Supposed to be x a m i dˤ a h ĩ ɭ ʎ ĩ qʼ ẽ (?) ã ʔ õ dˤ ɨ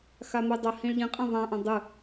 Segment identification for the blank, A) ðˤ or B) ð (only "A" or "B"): A